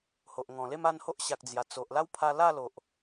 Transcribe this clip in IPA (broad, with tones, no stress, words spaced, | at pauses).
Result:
ho˨ʔŋɔ̃˨˩le˥˧m a˥˧nho˦ʔɕa˨k̚d͡zja˨˩ t͡so˨ʔla˦wpʰa˧la˥˧ lo˨ʔ